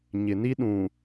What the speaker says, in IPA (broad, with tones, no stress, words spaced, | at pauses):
ɲɪ˨ni˦ ɗũ˨